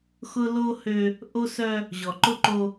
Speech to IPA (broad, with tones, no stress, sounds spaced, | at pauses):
x ʊ˦ l o˦ h ø˦ | ʔ o˦ s œ˦ | ʑ ɔ˨ ǃ ʊ˦ ǃ o˦